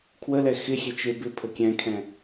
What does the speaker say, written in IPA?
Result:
kʰwəlɛ xɪxʲe t͡ʃebɪpʰə kʲɛ̃kʰɛ̃

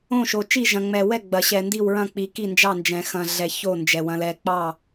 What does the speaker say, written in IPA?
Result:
õ˦˨ʃo˨t͡ʃi˦˨ ʒɐ̃˨ŋ͡mɛ˨ wɛ˦˨ɡ͡bɐ˨ɕɛ˨ ndi˦˨wɹɐ̃˦˨k͡pi˨ ki˦˨nd͡ʒɑ˦˨nd͡ʒɛ̃˨ xɐ̃˨ ɮɛ˨ ço˦˨ nd͡ʒɛ˨ wɐ̃˨lɛ˨k͡pɑ˦˨

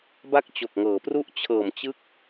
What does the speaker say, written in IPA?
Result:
ba˥˩k̚t͡ɕo˨˩k̚ŋɤː˩˦pru˥˩ʔ t͡ɕʰɤː˨˩mt͡ɕɯ˦˥k̚

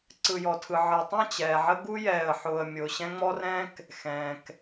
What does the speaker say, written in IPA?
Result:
ǀɯ˨jɔ˨tʰɯ˨ ʕɤ˨tˤɛ̃˦˨ t͡ɕɛː˨ʕə˦ ɡu˦jɛː˨ə̯ ħʊː˨ə̯ mʲʊː˨ɕɛ̃˦ ŋ͡mɔ˦rɛ̃˦k | xɛ̃ː˨k

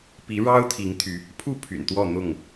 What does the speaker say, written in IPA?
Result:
pi˨˦ɻɑ˦ʊ̯ t̪ʰi˨˦ŋt̪ʰy˨˦ | pʰu˥˨ pʰy̰˨˩nt̪wɔ˥˨n̪ʊ˥˨ŋ

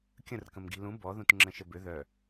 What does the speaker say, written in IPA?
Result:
kʲə̃rkə̃mɡi̤ lũ bɔðũt ŋ͡ǁə̃ʃəbʏ ðœ

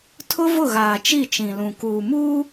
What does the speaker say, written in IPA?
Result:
tʰʊ˦vʊ˦˨ɣaː˨t͡ʃi˦˨ t͡ʃĩ˨lũ˨ kuː˨muː˦

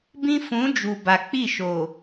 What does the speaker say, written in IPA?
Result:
bĩ˦ fũ˨˦d͡ʒu˨ ba˨k͡pi˦˨ʃoː˨

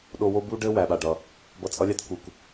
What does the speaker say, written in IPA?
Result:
ɗo˦wo˥ bu˥ɖɘ˥ wæ˩ɓa˨ɖʌ˩ | bʌ˦t͡sʼʌ˥lʲa˥t ku˨k

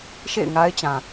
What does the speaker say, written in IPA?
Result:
ʃḛ˦˨ɪ̯ŋa˦ɪ̯t͡ɕã˨

